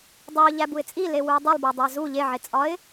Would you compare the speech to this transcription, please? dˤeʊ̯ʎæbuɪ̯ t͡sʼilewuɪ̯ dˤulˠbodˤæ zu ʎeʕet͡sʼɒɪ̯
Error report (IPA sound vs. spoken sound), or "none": none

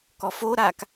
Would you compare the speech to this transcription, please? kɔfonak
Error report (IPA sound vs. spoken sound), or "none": n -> ɾ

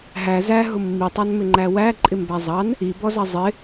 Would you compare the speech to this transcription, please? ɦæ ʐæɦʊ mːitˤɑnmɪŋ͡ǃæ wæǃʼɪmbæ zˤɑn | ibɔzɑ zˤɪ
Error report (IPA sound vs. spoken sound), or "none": ʐ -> z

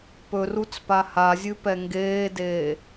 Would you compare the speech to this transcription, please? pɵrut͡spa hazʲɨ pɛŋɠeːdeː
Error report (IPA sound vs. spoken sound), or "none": ɠ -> ɡ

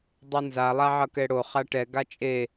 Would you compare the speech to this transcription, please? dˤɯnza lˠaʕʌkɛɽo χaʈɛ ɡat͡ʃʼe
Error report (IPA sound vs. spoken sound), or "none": none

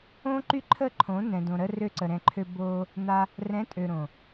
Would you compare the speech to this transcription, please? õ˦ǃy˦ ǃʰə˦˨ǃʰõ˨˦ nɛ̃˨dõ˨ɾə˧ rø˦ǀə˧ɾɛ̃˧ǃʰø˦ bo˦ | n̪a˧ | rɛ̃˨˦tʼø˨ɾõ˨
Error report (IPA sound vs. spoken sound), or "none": none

